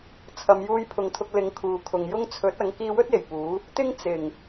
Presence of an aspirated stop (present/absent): present